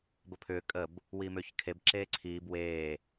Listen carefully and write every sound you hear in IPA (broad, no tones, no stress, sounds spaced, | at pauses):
b ə pʰ ʏː kʼ ə b | w iː m ʏː ç kʰ e b ǁ eː ǀʰ iː b w eː